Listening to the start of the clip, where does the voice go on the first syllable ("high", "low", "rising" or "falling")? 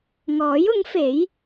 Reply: rising